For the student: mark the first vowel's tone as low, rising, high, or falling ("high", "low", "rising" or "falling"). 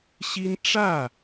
high